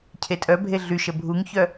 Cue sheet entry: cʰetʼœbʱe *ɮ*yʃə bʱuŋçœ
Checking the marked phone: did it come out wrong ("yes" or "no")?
no